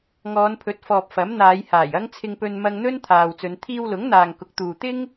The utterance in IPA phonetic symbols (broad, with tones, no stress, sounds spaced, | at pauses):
ŋ ɔː˨˧ n pʰ ɵ˨˥ t̚ f ɔː˨ p̚ f ɐ˨˥ m n̪ aː˨˧ j h aː˨˩ j ɐ˥ ŋ t͡sʰ ɪ˧ ŋ p ɵ˧ n m ɐ˧ ŋ n̪ ɵ˥ n t̪ʰ aː˨ w t͡s ɵ˨˧ n t̪ʰ iː˧ w l ʊ˨˥ ŋ n̪ aː˨ ŋ k ʊ˨˥ k̚ t̪ uː˨ t̪ ɪ˥ ŋ